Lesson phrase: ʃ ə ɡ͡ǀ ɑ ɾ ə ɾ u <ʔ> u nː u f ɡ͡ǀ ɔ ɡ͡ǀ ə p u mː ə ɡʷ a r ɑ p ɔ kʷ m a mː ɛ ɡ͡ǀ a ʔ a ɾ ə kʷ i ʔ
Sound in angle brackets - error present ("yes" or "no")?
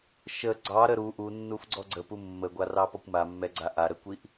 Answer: no